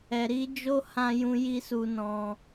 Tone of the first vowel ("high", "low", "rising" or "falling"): low